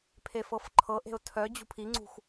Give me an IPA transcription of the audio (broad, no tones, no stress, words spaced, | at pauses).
pʰefɤfǃʰɤʔe̤ʊ̯ tʰœ d͡ʑṳpʰiŋ͡ǀṳx